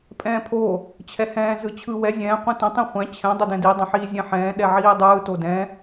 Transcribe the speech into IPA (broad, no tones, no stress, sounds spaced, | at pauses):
pʼ ɛ̃ː pʰ o | t͡ɕʰ ɛ h ɛ̃ː z ɯ t͡ɕʰ ɯː w ɛ zʲ ɛ̃ː qʷ ĩ t ə̃ tˤ ĩ χʷ ɛ̃ t͡ɕʰ ɛ̃ dˤ o d ɛ̃ d i dˤ ə̃ ħ iː zʲ ɛ̃ ħ ɛ̃ː ɗ ɛ ʕ iː dˤ ɯː t o d ɛ̃